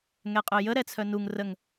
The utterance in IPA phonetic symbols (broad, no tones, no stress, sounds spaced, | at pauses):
ŋ ɛ qʼ œ j ə ɾ ɛ t͡sʰ œ n u ŋ r ə ŋ